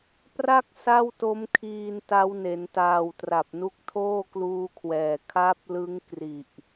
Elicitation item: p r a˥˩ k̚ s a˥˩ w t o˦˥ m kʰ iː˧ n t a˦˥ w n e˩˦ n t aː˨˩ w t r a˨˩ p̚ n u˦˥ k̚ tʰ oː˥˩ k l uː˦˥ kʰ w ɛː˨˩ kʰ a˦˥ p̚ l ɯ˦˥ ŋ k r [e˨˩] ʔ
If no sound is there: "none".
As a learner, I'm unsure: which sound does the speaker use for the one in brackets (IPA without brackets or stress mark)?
i˨˩